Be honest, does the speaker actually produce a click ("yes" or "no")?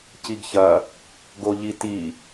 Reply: no